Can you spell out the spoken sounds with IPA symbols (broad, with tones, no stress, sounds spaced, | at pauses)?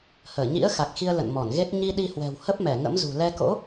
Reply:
h əː˧˩ ɲ ḭ˧˥ ə̯ x a˨˩ k̚ x i˧ ə̯ l ə̰˧˨ n m ɔ˧˩ n ɣ e˦˥ t̚ ɲ i˧ ɗ i˧ h w ɛ̤˨˩ w h ə˦˥ p̚ m ɛ˧˩ ŋ ə̰˧˥ m z ṳ˨˩ l ɛ˧ k o̰˧˥